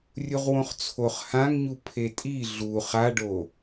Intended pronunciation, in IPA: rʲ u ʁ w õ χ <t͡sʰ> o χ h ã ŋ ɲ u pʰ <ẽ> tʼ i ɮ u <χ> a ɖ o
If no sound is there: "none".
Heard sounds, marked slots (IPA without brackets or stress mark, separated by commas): t͡sʰ, e, χ